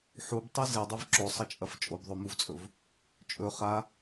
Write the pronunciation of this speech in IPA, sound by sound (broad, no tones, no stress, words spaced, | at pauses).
ħubtˤɨ zedˤev ǁosˤɐt͡ʃʼɐf t͡ʃʼobðˤomuvt͡sʼɵv | t͡ʃʼɵ χa